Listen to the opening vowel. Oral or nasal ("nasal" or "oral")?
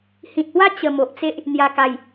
nasal